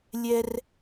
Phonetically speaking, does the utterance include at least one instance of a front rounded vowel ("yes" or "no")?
no